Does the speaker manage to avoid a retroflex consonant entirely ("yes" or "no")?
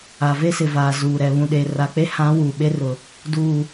yes